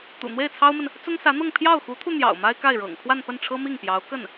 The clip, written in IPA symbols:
t̪ ṵ˨˩ n̪ w e˥˩ ɪ̯ t͡sʰ ɑ˥ ʊ̯ m ə˨ n | t͡s ʊ˥ ŋ s ä˧˥ n̪ ɤ˥˧ ŋ pʰ j ɑ˥˩ ʊ̯ x u˧˥ t̪ʰ u˧ n̪ j ɑ̰˨˩ ʊ̯ m a˥ ɪ̯ k a˥˩ ɪ̯ ɻ ɤ̰˨˩ ŋ kʰ w a˥˧ n p ə˥˩ n ʈ͡ʂʰ ɤ˥ m i˥˩ ŋ p j ɑ˧˥ ʊ̯ k ə˥˩ n

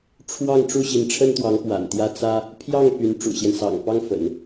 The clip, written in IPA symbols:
ʈ͡ʂʰ w ɑ˥˧ ŋ ʈ͡ʂ u˥˩ ɕ i˧˥ n ʈ͡ʂʰ ə˥ n t̪ w ɑ˧˥ ŋ p w a̰˨˩ n t̪ j ä˥˩ t͡s ä˥ | pʰ j ɑ˥˩ ŋ p y˧˥ n ʈ͡ʂ ṵ˨˩ ɕ j ɛ˦ n s ɑ̰˨˩ ŋ p ɑ˥ ŋ f ə̰˨˩˦ n

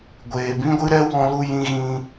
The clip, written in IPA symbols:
ɡʷ eː˨ b ĩ˦ ɡʷ ɨ˦ ɾ ɛ˦ w ɔ̃˧ l u˧ j ĩ˧ ɣ ĩ˧

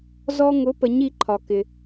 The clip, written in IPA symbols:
z ɔ˧ ŋ ʊ˩˥ p ə˩˥ ɲ i˩˥ ǃʰ ɒ˩ k ɪ˩

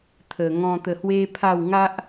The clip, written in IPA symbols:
t̪ʰ ə˨˩ ŋ ɔ̃˧ t̪ ə˧ h w e˦ pʰ a˥˧ w ŋ a˦ ʔ

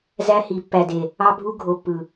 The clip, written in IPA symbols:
z æ˦ h i˨ pː æ˨ d e˨ | ɑ˦ bʱ u˦ ɡʱ o˨ pː ɯ˨

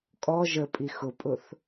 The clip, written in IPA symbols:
kʼ ɔ ʒ ə pʼ i x ʊ pʼ ʊ θ

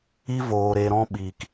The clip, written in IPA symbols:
i˦ v oː˧ ɾ e˧ ɾ ɔ̃˦ ɓ iː˧ k

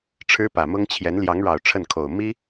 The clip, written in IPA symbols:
ʈ͡ʂʰ ɻ̩˥ p ä˨˩ m ʊ˥ ŋ t͡ɕʰ j ɛ˧˥ n l j ɑ˧˥ ŋ ɻ ɑ˨˩ ʊ̯ ʈ͡ʂʰ ə˥˩ n kʰ o˨˩ ʊ̯ m i˥

